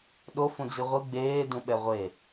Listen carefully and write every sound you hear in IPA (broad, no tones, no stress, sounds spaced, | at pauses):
ɗ o f ũ d͡z i ʁʷ ɯ ɡ͡b eː d ũ ɓ ɛ ʁʷ e